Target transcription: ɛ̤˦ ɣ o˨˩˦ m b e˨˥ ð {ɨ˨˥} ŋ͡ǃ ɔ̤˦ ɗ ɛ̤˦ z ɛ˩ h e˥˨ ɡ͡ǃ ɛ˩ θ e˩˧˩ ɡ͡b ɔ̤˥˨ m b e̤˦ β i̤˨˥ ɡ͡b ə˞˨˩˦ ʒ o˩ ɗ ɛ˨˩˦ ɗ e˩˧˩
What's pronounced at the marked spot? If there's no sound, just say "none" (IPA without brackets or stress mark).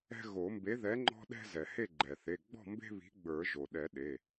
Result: ɛ˨˥